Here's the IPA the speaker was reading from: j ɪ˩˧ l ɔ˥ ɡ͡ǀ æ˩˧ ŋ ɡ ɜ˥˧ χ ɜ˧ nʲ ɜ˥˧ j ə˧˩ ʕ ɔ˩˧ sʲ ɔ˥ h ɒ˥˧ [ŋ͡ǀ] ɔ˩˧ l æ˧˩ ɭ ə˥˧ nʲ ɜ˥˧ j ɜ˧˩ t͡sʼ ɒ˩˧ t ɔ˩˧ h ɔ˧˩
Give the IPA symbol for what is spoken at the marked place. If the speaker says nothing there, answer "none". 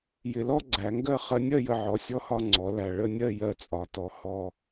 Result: ŋ͡ǀ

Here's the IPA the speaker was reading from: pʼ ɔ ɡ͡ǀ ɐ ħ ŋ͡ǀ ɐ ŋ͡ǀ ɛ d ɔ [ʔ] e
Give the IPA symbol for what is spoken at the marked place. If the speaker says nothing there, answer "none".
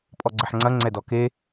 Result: k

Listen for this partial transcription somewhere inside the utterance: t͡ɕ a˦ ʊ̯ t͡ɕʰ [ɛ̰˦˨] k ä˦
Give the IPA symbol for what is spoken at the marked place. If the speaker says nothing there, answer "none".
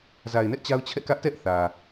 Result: ɛ̰˦˨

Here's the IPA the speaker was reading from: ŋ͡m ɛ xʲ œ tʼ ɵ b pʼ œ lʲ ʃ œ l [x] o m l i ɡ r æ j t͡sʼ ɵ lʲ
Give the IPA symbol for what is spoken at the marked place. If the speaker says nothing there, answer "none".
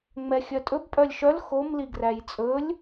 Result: x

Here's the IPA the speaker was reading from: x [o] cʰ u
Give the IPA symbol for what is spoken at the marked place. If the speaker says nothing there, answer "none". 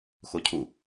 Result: o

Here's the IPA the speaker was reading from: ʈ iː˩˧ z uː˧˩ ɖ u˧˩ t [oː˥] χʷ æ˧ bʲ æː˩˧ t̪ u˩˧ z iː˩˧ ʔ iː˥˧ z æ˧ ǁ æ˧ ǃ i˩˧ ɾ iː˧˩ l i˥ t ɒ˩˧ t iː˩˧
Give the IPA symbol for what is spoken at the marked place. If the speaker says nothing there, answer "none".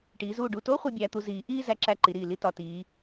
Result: oː˥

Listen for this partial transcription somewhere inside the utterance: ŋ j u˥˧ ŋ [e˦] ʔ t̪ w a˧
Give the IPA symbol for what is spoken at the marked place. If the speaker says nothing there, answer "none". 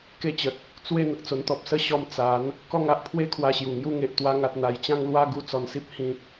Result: e˨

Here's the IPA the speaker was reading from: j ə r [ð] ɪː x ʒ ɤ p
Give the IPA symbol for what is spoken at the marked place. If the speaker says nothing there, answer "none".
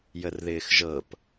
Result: ð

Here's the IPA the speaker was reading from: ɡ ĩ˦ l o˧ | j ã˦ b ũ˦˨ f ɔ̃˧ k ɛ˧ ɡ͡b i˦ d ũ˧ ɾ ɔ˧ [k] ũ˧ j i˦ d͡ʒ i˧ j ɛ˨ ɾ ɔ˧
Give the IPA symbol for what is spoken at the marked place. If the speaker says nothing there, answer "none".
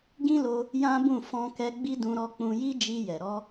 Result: k͡p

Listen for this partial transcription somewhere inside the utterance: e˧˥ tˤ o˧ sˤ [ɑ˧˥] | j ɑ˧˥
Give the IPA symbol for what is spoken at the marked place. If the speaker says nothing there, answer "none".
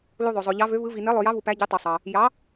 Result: ɑ˧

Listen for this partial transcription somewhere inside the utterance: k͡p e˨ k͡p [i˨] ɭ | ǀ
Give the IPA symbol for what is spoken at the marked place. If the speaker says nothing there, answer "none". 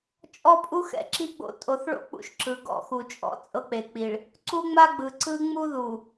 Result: i˨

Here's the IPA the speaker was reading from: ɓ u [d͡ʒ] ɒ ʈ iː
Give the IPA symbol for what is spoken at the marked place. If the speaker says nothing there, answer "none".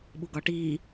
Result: ɡ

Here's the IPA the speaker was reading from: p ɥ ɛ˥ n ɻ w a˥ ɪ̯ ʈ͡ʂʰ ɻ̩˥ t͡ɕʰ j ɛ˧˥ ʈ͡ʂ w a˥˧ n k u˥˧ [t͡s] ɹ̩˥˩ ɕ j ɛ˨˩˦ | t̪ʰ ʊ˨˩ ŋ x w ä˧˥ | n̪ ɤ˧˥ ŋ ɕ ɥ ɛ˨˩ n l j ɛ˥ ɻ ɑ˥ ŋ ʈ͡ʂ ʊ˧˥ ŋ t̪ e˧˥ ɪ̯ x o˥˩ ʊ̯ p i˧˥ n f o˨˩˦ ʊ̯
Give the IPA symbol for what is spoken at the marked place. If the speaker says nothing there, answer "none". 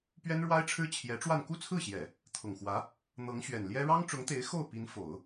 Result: t͡sʰ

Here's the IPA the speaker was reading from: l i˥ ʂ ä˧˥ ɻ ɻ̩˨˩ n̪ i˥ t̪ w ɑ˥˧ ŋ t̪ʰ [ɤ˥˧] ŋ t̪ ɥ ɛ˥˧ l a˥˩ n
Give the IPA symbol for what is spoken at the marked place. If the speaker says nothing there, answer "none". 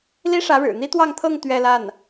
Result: ɤ˥˧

